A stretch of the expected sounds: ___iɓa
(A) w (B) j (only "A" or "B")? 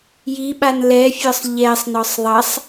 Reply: B